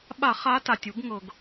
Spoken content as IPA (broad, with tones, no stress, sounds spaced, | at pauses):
ɓ a˧˩˧ χ a˨˦ t a˩ tʲ u˧˩˧ ɡ ŋ ɤ˩ ɡ